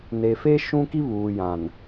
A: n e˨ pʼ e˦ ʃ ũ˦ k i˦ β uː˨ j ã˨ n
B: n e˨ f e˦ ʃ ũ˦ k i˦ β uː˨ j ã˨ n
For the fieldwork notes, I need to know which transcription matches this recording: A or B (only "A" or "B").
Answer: B